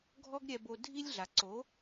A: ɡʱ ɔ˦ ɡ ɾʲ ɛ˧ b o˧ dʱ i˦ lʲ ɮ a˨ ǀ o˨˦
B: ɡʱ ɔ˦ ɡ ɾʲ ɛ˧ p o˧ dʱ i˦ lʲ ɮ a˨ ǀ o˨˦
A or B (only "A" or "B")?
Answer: A